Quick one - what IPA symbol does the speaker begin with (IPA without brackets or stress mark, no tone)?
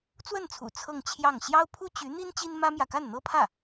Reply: t͡s